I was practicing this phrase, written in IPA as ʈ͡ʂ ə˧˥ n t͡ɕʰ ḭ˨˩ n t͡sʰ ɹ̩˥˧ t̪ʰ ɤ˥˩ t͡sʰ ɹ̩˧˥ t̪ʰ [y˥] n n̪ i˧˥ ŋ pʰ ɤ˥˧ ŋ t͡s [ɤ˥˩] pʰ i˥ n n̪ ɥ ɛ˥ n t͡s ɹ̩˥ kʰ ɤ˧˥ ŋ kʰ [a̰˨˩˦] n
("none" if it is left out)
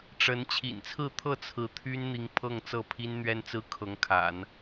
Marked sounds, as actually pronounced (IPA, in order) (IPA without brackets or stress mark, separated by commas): y˥, ɤ˥˩, a̰˨˩˦